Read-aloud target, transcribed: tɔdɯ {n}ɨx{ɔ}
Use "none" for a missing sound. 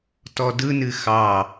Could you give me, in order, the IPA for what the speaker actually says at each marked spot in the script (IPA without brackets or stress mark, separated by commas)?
n, ɑ